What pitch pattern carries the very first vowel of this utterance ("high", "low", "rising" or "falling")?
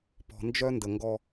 low